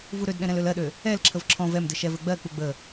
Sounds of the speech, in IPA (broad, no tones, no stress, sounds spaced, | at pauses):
v u ɾ ø d ɗ ɛ̃ ɾ ɛ̃ l ø l ɜ ɗ ø | ɛ l ǁʰ ə v ǁʰ ɔ̃ v ɛ m d ɘ ʃ ɛ v ɘ ɡ͡b ɜ k͡p u ɡ͡b ə